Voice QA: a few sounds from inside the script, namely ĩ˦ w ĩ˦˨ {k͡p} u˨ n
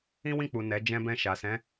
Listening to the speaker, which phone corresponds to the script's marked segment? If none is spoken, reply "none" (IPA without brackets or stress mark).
k͡p